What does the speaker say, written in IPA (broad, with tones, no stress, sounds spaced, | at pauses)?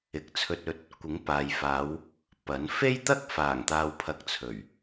ɪ˨ k̚ t͡sʰ ɵ˧ t̚ ɵ˧ t̚ | kʷ ɪ˨˥ ŋ p aː˨ j f aː˨˧ w | p ɐ˨˥ n f e˥ j t̪ ɐ˥ k̚ f aː˨˩ ŋ t̪ aː˨ w pʰ ɐ˧ k̚ t͡sʰ ɵ˨˩ ɥ